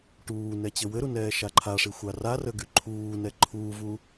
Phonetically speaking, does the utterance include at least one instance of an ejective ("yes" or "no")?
no